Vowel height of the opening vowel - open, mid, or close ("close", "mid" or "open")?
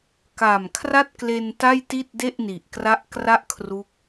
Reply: open